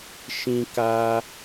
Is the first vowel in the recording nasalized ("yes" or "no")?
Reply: yes